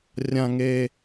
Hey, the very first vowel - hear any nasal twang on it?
yes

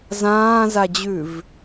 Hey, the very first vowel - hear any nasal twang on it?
yes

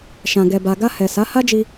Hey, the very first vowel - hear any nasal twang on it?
yes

